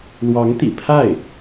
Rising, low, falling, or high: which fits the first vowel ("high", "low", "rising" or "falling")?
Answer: rising